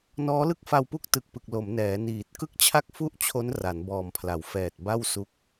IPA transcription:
nɔː˦˥lɯ˥˩k̚fa˧wpu˥˩k̚ tɯ˨˩k̚pɯ˨˩k̚ lo˩˦mnɛː˩˦ niː˨˩t̚ kɯ˥˩k̚t͡ɕʰa˥˩k̚fu˥˩ʔt͡ɕʰo˦˥n ra˩˦nbɔː˨˩mpʰla˩˦wfɛː˨˩t̚ ba˥˩w su˦˥k̚

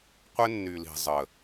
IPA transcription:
qʷɪ˦nːy˨li̤˨ zˤə˨

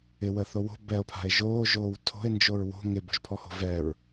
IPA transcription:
ɪwəθo wo̤ bɛo̯pʰa̤e̯ ʒoːʒoːw tʰo̤e̯nd͡ʒoɹ wo̤ ŋɪbo̤ʒpʰɔho̤ vɛɹ

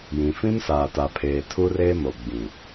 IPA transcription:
jĩ˨fĩ˦m saː˨ta˨pʰeː˨ tʰu˦reː˦ mo˨ɡ͡bĩ˨

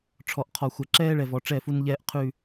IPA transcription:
ʈ͡ʂʰɔ˨ʔ qʰɔ˨xʷɛ˨ ǁɛː˦ɭɛ˨vɔ˨ ʈ͡ʂɛ˦˨fu˦nʎɛː˦ʔqʰʉ˦˨

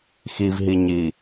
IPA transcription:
xivɦiɲi

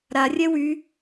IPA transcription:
ɾarʲɛ wy

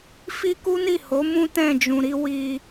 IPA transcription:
fi˦ku˦ni˦˨ho˨˦ mũ˦ tɛ̃˦˨d͡ʒũ˨ɾi˨˦ wi˧

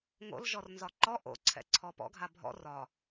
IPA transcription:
ŋo̰lʒɔrnzɒ ǃɔ ʔo̰ǀʰɛ̰ǀʰɔ pɔ̰ɡʱa bʱɔ̰ rɒ

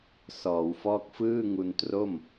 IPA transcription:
sɔː˩˦wfɔː˥˩k̚ fɯː˥˩ŋu˧ntro˥˩m

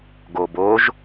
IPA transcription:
ɡoboʒ

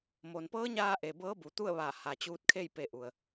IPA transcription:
mo˩npɤː˧˥ɲaː˧ ʔe˩bɤː˧˥ bu˩˧t̪u˥˨ə̯ʋa˧˩ ha˩t͡ɕuː˧t̚kʰe˥˨j pe˧ʔu˩ə̯

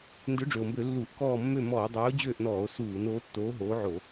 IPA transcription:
ndʏ˨˥ɖ͡ʐø˩o̯mbø˧˩˧ lːu˧˩˧ʔkɔː˦˨ mːø˦˨mɔː˧˩˧dˤøː˨˥o̯ d͡ʑøː˦˨ʔnɔː˧˩˧o̯suː˧˩˧n oː˨˥tːoː˨˥ɦoː˨˥ ʕo˧˩˧

